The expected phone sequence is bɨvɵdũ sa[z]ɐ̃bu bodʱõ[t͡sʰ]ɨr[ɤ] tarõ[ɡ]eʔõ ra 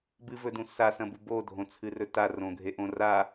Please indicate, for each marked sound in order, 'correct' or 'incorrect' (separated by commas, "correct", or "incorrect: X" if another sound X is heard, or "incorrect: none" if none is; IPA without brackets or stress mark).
incorrect: s, correct, incorrect: ɵ, incorrect: ɡʱ